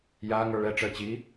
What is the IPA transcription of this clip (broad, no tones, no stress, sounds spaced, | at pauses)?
j a ŋ ə˞ ɭ ɛ ʈ͡ʂ əː t͡ɕ i